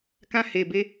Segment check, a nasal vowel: present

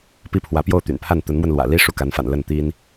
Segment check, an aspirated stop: present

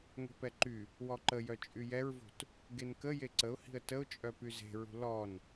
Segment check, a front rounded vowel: present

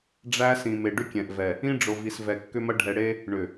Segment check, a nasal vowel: present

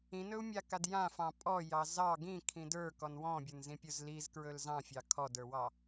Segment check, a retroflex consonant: absent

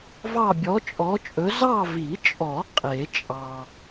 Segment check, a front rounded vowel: absent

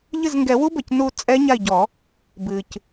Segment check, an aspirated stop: absent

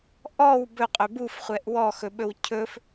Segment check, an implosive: present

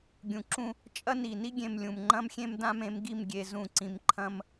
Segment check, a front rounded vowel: absent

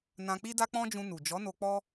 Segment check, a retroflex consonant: absent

